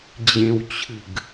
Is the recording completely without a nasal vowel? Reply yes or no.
no